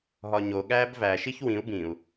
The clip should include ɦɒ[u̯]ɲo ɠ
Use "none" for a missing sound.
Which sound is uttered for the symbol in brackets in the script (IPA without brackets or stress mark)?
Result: none